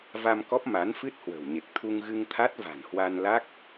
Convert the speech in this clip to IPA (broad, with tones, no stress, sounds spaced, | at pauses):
v a˧ m k ɔ˦˥ p̚ m a˨˦ n f ɨ˦˥ t̚ h w ə̤˨˩ w ɲ e˨˩ k̚ t̪ʰ u˧ ŋ ɣ ɨ˧ ŋ t̪ʰ a˦˥ t̚ v a̤˨˩ n h w a˧ n l a˦˥ k̚